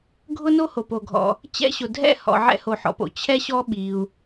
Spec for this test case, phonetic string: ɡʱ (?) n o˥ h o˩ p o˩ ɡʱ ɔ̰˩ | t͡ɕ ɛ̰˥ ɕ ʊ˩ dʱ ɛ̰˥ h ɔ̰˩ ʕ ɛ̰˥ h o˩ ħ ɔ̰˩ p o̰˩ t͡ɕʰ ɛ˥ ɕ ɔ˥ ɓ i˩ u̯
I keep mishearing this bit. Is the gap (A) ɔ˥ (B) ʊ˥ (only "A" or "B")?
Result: B